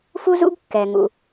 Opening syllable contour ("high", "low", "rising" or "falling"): high